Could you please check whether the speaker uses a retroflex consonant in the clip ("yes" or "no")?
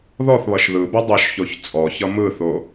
no